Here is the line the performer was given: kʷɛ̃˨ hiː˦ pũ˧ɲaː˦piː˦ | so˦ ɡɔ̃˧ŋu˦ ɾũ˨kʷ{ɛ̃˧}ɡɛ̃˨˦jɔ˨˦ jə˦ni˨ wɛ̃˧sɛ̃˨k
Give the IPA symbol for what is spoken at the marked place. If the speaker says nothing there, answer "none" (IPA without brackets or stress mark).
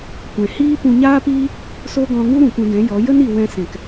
ɛ̃˧